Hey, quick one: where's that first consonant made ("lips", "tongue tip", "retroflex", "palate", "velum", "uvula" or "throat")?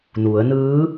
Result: tongue tip